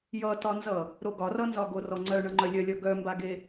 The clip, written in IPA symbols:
jʌtɒnzʌ | ɾoɡɒrʌnzɒ ɡorɔŋ͡ǀœ ɳʌŋ͡ǃœlʲœlʲʌ ɡœmbaɡe

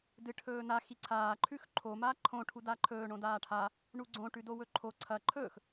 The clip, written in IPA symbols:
dɨʈʰɵːna xiǀʰaː ǃʰʉxǃʰo maːǃʰõ ʈʰudaǃʰɵː ɳõdaːʈʰa | ɳuɡ͡ǀõ ʈʉdowɵǃʰo ǀʰɐ ǃʰɵx

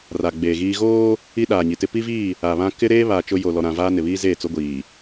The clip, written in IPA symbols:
ra˨ɡ͡beː˨ɣiː˦ ɣoː˦ | i˦ɗaː˨ɲi˨tɪ˦ pi˦viː˦˨ | a˨βã˦ kɪ˦ɾeː˦βa˨ t͡ʃʊ˦ jo˨ lɔ˨ɾã˨vaː˦ nɪ˨βiː˦zeː˦˨ t͡so˦ɡʷiː˨

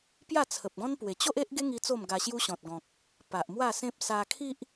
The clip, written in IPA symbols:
pja˥˧t͡sʰə˨p̚ɡɔ̃˦npwe˨˩ t͡ɕo˦ʔe˦ʔɡe˦ŋi˧ t͡so˥˧mɡa˧ɕju˦ ɕɔ̃˨t̚ɡɔ̃˨k̚ | pa˨ʔmwa˥˧sẽ˦p̚ sa˧kʰi˦ʔ

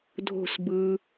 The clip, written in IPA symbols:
dʱo̤˥˨s bɯ˨

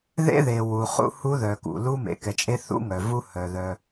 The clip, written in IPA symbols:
ðḛ˦ðe˨ wu˨χṵ˦hu˦ ðœ˨kṵ˨lu˦ mḛ˨kɛ˨t͡ʃʼe˦ θṵ˦ŋœ˨vu˦ hœ˨ðœ˦

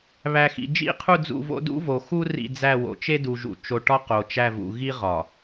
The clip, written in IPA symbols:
βæ˨xḭ˨ d͡ʒḭ˦˨qʰu˦˨d͡zṵ˦˨vo̰˦ dṵ˦vo˨xu˦ rḭ˦˨d͡zæ˦˨wo̰˨ t͡ʃe˦du˨ʒṵ˨ t͡ʃo˨ʈɒ˦ qo˨t͡ʃæ˦˨vṵ˨ ɣi˦ʁɒ˨

